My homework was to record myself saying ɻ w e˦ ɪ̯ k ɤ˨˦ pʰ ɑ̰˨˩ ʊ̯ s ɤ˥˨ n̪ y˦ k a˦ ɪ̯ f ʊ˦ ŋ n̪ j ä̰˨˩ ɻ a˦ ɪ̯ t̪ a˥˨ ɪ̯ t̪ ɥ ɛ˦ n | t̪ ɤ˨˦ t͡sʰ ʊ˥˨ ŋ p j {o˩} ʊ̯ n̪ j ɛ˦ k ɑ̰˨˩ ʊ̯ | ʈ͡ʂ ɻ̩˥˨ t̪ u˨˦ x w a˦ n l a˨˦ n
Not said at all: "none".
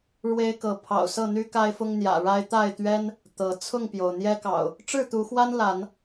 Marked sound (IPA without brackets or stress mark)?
o˩